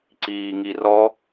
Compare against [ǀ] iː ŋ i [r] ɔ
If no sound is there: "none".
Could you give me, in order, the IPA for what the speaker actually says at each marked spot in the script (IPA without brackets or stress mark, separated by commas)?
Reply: ǀ, r